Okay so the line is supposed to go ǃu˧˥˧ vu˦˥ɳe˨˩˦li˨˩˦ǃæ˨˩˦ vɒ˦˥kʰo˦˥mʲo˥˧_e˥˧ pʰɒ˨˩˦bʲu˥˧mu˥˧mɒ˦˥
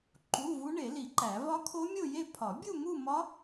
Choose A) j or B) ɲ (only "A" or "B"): A